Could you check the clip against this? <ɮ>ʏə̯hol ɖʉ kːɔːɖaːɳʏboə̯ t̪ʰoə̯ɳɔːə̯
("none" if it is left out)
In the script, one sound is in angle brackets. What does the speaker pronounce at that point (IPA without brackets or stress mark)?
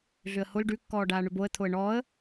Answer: ɮ